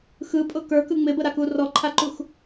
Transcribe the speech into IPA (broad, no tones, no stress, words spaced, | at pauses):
xɯpʼʊ kə˞kɯ ŋ͡mɪbəɾaku rɔǃʰaǃux